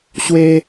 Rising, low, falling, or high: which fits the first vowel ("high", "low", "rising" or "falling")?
high